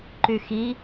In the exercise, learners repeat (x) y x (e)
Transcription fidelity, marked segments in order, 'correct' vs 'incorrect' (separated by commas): incorrect, incorrect